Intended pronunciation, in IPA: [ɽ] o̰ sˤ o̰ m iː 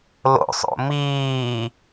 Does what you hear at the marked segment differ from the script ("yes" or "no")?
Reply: yes